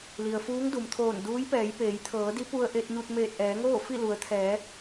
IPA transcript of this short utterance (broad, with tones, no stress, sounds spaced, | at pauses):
l i˩ ə̯ f uː˧˥ ŋ d u˩ m t̪ʰ oː˧˩ n d uː˧˥ j p ɛː˩˧ j p eː˩˧ j t̪ʰ ɤː˩˧ d i˧˥ p u˧ ə̯ ʔ e˧ t̚ ɲ u˧ t̚ m eː˧˩ t̚ ʔ ɛː˩˧ ŋ oː˥˨ f i˥˨ l u˩˧ ə̯ t̪ʰ ɛː˩˧